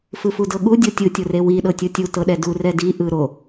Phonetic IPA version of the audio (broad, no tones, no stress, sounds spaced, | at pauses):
f ɯ f u d ɤ ɠ u dʲ o tʲ ɯ tʲ o r e w i ɗ ɤ tʲ u tʲ u t ɤ ɗ ɛ d u r ɛ d i ʔ ɯ ɾ o